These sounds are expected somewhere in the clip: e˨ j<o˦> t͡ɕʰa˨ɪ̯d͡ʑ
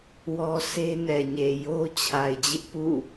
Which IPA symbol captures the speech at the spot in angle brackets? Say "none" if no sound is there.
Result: o˦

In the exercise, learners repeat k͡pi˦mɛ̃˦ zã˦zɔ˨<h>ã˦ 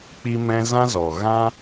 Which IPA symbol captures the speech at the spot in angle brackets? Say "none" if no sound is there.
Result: ɣ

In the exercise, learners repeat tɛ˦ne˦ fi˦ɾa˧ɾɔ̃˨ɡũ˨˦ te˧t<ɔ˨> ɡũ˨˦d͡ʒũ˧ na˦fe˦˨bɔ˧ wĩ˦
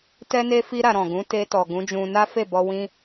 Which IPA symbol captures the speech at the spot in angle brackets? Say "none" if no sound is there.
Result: ɔ˨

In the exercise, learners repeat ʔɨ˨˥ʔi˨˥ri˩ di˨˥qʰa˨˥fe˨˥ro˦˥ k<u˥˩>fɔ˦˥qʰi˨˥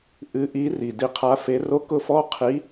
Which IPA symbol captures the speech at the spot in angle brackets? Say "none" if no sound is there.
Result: ʊ˥˩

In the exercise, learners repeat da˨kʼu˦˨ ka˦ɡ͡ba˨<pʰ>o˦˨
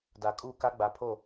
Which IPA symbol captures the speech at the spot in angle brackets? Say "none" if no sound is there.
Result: pʰ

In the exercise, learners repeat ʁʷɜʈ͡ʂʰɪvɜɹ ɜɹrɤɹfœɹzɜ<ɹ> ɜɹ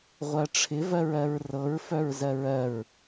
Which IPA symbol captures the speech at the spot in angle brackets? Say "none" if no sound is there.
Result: ɹ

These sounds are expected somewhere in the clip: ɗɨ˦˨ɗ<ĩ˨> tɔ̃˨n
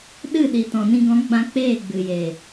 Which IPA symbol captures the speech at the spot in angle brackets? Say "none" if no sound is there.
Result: i˨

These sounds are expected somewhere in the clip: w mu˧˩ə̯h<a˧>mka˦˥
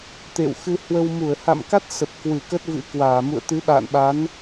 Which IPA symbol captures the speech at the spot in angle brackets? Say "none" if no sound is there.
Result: a̰˧˨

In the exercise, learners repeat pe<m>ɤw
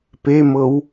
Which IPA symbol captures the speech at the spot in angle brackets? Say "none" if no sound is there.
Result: m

